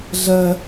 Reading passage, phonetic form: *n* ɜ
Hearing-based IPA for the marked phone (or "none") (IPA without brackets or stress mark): ɮ